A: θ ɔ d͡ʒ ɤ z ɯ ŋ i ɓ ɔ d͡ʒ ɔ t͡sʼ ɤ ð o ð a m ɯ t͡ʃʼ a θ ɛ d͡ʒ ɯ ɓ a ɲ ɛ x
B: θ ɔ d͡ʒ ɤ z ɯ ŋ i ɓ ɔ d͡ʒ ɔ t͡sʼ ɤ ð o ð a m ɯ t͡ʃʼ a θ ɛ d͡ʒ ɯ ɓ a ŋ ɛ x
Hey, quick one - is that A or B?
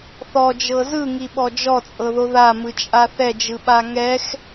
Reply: B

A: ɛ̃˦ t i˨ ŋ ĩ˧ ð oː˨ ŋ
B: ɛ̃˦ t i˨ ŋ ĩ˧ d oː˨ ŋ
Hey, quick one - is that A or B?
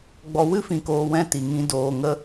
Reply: B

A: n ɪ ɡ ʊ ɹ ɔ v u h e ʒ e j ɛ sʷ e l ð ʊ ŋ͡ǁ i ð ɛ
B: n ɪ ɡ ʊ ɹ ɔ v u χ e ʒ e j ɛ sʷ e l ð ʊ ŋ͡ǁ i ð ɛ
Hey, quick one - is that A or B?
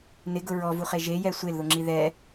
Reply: B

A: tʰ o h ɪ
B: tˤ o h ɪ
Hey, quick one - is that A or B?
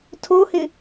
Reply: A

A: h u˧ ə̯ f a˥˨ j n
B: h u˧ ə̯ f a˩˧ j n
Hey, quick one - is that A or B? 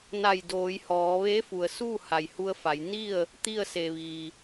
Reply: B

